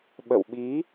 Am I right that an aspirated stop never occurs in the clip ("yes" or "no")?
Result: yes